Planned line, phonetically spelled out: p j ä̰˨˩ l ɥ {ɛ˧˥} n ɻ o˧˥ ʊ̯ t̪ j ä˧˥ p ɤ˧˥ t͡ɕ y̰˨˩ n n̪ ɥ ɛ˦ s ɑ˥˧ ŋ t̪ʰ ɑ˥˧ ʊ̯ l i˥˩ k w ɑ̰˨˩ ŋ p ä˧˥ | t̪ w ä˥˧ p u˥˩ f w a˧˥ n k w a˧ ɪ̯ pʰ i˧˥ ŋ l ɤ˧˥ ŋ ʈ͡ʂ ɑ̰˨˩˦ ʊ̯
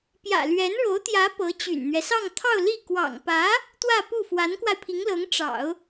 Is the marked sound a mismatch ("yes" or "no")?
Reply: no